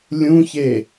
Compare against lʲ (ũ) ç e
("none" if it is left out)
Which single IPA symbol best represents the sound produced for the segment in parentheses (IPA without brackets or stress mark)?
ũ